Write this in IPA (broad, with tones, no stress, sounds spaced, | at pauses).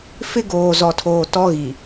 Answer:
f ɪ˦ ɡ oː˨ z ɔ˨ tʰ oː˨ t ɔ˦ ɣ i˨